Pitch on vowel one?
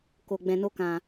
low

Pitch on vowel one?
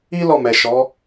high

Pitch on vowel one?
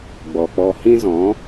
low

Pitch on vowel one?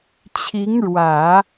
rising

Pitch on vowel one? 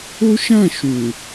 high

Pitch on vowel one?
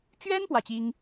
high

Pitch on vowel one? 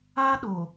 high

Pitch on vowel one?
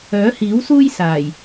rising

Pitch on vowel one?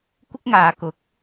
high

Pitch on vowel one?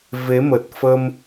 rising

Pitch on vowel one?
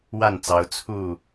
falling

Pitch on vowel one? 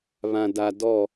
low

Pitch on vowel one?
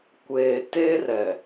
low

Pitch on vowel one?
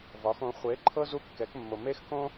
rising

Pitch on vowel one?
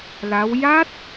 rising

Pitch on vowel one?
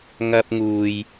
high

